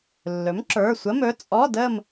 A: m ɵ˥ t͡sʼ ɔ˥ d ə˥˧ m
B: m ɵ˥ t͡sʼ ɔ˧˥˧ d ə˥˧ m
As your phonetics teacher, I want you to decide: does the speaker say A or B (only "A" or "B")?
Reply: B